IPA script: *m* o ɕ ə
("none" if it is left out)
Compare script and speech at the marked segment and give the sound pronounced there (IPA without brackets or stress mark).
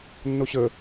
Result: nː